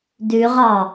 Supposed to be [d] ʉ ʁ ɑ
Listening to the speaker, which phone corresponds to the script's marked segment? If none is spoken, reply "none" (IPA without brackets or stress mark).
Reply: d